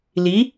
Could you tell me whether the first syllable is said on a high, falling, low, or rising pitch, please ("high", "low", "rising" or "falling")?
rising